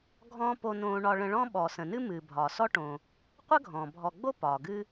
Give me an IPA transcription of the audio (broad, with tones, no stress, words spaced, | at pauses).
ɡʱɔ̃ː˥po˦ nõː˦ɳɒ˦ɭə̃˦ ɭɔ̃˥ɓɔ˨ sə̃˨nɨ˥ mɨː˨bʱɒː˨sɔ˥ʈõː˨ | qʷə˥ɡʱɔ̃ː˩bʱɔ˨ɡ͡bo˥ pɒː˩ɡɨː˥